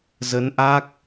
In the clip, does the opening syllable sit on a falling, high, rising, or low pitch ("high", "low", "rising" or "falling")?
rising